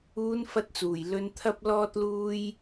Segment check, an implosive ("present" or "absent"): absent